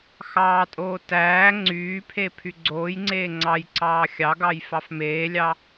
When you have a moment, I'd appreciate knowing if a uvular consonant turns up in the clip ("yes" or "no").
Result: no